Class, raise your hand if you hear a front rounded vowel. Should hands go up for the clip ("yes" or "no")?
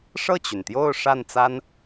yes